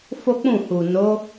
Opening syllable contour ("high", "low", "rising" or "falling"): high